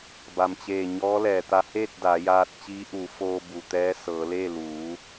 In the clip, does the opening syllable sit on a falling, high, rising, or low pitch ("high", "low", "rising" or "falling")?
low